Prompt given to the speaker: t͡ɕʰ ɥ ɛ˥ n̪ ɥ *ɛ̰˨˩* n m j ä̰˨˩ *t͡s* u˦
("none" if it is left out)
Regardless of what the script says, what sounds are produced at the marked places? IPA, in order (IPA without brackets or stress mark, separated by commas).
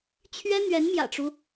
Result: ɛ˧˥, ʈ͡ʂ